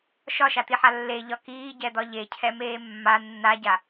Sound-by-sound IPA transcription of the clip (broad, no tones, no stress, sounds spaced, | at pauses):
ʃ ɒ ʃ a t̪ i ħ a lː e ʎ ɒ k iː ɟ ɛ d̪ ɒ ʎ e cʰ ɛ m eː mː a nː a ɟ a